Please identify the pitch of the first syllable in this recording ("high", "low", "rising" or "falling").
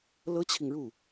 high